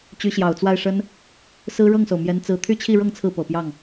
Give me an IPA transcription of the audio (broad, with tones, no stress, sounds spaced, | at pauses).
t͡ɕ y˧˥ ɕ j ɑ˨˩ ʊ̯ t͡s w a˥˩ ɪ̯ ʂ ə˥ n | s ɹ̩˥ ɻ ɤ˥˩ ŋ s o˩ ʊ̯ m j ɛ˧˥ n t͡s ɹ̩˧˥ t̪ʰ y˥˧ t͡ɕʰ i˥˧ ɻ ɤ˥˧ ŋ t͡sʰ ɹ̩˥˩ p ɤ˨˩ p j ɑ˥˩ ŋ